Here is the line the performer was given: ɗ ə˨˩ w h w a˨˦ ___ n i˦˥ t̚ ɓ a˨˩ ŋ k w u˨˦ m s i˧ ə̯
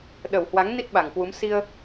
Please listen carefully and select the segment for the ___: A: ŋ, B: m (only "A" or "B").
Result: A